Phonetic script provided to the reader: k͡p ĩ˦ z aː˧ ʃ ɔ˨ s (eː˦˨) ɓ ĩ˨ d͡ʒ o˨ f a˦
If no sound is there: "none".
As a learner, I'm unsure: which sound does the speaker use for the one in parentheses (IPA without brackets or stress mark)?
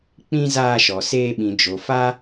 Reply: eː˧